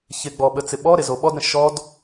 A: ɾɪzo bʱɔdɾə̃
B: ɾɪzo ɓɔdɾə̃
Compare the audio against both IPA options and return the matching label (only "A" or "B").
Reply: B